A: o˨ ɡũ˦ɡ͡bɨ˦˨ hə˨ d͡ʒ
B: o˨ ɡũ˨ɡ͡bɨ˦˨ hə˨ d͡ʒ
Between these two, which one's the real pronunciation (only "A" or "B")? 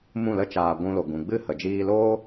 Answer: B